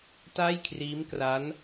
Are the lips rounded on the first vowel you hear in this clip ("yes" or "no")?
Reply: no